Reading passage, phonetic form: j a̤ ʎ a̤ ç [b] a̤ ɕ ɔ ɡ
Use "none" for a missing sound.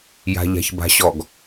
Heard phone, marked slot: b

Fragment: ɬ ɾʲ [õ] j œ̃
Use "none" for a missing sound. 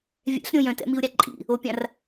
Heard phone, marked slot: õ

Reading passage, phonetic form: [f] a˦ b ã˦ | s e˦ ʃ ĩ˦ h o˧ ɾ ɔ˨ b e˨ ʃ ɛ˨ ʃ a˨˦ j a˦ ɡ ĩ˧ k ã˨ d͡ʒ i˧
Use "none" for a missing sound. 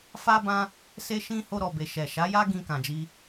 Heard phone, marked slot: f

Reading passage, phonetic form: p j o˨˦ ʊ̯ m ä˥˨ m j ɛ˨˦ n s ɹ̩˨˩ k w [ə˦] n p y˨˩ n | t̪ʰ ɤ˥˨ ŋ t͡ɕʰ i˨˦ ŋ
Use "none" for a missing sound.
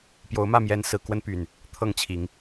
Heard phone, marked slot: ə˦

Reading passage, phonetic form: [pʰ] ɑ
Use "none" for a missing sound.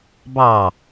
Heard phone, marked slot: b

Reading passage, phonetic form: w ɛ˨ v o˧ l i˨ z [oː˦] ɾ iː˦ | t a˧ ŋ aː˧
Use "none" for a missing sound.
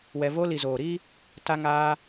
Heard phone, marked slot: oː˨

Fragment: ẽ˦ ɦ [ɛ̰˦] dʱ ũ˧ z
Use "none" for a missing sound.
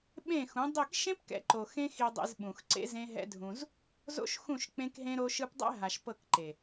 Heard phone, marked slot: ɛ̰˦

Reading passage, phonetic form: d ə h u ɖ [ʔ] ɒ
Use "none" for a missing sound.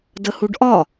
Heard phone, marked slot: ʔ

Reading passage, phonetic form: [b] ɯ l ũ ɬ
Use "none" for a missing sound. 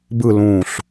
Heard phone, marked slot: b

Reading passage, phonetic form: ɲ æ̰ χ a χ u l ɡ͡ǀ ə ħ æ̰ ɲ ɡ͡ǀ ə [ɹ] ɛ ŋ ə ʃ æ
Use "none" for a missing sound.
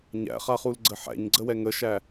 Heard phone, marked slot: w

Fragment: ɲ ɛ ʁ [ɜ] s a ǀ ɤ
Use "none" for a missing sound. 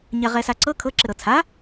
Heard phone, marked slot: ɛ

